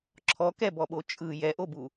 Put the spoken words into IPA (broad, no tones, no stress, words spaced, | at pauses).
ǁʰɔ kɛbɔɓo t͡ʃʼɯ jɛʔobu